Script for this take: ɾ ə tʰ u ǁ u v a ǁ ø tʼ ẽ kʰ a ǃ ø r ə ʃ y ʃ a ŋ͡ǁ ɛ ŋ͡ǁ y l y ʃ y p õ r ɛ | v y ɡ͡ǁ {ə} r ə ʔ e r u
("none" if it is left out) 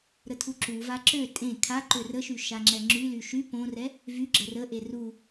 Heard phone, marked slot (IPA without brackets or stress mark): ə